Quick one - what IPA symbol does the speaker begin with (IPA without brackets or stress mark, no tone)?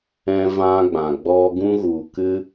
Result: ɛ̃